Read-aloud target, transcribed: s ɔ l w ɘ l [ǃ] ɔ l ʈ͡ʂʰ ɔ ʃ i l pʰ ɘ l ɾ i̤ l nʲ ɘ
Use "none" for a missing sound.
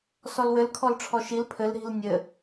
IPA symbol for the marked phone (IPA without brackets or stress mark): kʰ